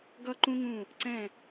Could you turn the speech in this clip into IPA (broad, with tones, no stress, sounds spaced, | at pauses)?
ɡ ʌ˥˧ ǃ ũ˥ ŋ ũ˥˧ | ǀ ɛ̃˥˧